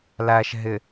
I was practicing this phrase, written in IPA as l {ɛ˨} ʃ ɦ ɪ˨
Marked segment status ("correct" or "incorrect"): incorrect